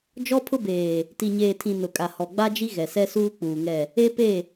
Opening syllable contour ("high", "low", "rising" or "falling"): high